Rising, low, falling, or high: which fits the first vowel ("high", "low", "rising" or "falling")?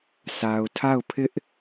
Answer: low